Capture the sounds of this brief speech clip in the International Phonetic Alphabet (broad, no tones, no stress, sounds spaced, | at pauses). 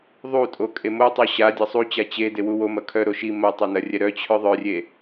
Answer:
ðˤ u tʼ o kʼ e m o tˤ o ɕ a dʲ ɐ sˤ u t͡ɕ a t͡ɕ e d e w u w o m ɐ kʰ œ ɾ o ʃ i m ɐ tˤ a n ɐ rʲ ɛ ɾ œ t͡ɕʰ œ ðˤ œ rʲ e